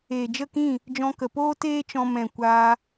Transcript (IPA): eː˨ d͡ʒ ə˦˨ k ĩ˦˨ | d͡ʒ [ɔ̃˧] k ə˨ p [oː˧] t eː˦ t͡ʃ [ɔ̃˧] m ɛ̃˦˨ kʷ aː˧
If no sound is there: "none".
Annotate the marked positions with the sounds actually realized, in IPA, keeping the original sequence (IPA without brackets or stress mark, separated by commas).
ɔ̃˧, oː˦, ɔ̃˧